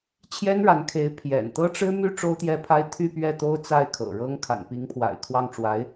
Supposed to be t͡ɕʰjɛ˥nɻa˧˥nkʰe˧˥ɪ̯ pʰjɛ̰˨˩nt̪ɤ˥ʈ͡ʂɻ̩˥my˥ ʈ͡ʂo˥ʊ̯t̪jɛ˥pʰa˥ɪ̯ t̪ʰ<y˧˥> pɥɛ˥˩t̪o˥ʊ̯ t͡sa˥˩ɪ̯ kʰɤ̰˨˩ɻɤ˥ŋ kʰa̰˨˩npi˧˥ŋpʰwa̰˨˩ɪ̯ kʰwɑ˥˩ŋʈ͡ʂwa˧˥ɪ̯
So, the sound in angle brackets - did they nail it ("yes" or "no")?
no